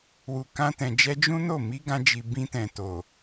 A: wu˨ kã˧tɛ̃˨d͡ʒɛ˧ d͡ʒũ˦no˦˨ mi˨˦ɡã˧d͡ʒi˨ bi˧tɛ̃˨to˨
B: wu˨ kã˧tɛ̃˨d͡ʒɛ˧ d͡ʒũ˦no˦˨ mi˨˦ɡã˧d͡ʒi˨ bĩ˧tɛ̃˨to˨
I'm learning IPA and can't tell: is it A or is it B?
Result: B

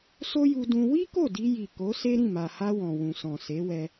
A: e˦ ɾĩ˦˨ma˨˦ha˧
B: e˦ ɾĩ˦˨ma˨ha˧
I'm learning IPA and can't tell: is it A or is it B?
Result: B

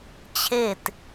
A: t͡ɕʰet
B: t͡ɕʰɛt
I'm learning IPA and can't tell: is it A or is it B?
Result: A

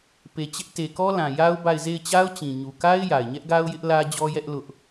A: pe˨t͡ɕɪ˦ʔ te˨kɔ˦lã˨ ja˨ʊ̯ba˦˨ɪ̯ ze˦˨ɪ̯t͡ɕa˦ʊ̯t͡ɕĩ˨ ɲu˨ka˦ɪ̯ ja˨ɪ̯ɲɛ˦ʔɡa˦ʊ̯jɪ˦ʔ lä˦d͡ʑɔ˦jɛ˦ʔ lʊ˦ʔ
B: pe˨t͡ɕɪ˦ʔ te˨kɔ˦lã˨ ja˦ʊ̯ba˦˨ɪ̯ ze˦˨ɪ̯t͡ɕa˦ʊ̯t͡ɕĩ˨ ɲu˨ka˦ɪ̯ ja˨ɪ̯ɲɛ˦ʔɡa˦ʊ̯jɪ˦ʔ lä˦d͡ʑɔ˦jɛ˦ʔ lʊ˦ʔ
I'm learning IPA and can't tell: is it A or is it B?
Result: B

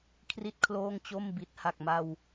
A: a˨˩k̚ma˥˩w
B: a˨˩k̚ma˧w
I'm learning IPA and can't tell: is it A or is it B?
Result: B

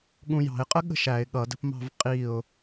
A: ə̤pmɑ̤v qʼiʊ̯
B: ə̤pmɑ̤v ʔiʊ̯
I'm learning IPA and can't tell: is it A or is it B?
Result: A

